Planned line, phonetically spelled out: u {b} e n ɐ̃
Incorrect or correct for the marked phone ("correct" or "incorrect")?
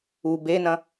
correct